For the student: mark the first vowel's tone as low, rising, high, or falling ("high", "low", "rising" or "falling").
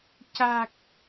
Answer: low